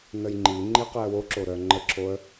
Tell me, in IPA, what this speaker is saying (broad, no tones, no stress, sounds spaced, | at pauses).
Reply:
n ə j ŋ͡ǃ i ŋ͡ǃ i q i ə̯ w o ǁ o ɾ œ ŋ͡ǃ ə ǁʰ o ə̯